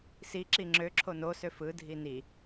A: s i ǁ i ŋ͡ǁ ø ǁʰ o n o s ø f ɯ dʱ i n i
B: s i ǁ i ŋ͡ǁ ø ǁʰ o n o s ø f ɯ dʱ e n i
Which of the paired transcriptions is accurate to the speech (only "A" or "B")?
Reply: A